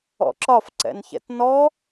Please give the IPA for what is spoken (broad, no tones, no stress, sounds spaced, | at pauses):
ɔ̰ ǁ ɒ f ǀ ɛ̰ n ç ɛ̰ t n ɔ